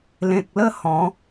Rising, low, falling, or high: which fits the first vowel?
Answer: low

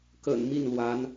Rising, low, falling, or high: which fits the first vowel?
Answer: low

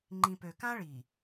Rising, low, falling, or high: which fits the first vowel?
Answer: low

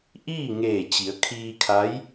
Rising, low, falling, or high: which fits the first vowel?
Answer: falling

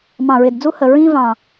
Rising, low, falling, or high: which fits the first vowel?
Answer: low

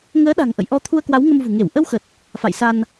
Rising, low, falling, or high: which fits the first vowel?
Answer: rising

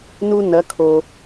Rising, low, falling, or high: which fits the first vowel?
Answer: high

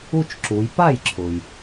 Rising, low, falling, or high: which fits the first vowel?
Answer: falling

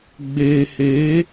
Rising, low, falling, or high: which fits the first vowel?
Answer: low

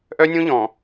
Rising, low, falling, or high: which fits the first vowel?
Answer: high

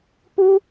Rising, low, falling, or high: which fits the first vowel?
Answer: high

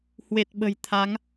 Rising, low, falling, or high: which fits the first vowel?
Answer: low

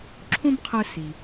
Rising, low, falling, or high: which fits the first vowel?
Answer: high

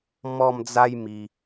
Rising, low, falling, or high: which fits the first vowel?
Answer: falling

